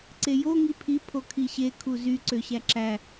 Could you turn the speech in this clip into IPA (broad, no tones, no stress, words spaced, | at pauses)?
ǀejo ŋipʰi pʰokʰiɕe kʰuzy ǀøɕæǁæ